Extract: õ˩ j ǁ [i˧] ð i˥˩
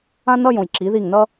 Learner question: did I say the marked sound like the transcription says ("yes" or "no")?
no